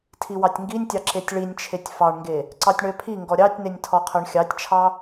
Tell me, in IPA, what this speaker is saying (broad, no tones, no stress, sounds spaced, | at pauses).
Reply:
tʰ i w ɑ tʲ ŋ ɡ i nʲ tʲ ɑ ǁ e tʲ ɭ i nʲ t͡ʃʰ e tʲ f ɑ ɳ ŋ ɡ e | ǀ ɑ tʲ ɳ œ pʰ i ŋ ɡ ɔ ɾʲ ɑ tʲ n e nʲ tʰ ɔ qʰ œ ɳ xʲ ɑ tʲ t͡ʃʰ ɑ